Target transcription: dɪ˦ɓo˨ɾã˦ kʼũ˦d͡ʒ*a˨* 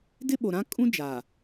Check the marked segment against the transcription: correct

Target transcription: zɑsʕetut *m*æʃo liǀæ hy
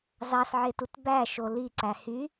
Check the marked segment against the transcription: incorrect: b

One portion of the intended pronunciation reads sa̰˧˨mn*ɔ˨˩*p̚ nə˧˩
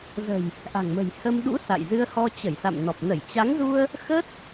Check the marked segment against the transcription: correct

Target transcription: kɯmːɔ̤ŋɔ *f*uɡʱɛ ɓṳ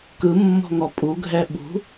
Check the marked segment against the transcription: incorrect: pʼ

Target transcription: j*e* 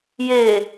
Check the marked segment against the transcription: correct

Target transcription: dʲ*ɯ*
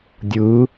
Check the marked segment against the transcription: correct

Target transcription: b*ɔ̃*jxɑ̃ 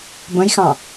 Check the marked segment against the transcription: incorrect: ə̃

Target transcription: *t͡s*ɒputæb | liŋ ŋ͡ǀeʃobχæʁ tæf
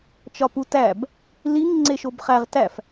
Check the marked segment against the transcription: incorrect: t͡ʃ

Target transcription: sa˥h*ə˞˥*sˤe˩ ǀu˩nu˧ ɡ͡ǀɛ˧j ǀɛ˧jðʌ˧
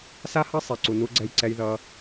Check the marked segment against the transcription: incorrect: ʌ˥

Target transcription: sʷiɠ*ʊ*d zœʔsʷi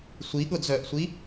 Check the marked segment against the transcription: correct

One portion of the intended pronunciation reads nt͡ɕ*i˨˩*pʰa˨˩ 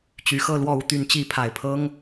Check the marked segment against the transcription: incorrect: i˧˥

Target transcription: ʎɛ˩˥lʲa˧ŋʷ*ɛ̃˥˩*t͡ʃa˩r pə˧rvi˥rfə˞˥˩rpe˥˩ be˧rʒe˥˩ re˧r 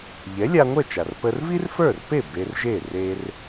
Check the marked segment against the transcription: incorrect: ɛ˥˩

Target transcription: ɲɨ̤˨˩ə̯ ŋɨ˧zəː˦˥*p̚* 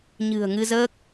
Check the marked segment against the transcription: incorrect: k̚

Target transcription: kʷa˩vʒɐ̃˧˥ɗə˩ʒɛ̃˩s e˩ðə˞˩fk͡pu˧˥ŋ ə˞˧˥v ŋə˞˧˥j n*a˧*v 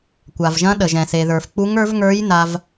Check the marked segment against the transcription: correct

